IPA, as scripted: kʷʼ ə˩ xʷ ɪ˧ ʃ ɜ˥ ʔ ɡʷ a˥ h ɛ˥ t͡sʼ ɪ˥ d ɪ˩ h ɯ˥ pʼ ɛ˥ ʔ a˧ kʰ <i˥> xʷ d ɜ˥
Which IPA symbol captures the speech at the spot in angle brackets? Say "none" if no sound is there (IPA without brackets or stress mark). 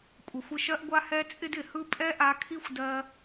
i˥